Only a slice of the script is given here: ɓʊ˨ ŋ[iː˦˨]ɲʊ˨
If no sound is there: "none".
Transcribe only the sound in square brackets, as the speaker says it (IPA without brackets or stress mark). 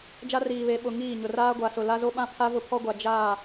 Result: iː˦˨